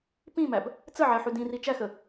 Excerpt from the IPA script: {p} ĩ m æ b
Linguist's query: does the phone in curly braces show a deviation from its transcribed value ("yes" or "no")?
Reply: no